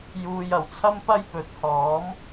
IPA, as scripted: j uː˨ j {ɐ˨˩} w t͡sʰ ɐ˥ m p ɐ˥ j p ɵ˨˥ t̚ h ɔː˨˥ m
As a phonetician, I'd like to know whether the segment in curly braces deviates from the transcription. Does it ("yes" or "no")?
no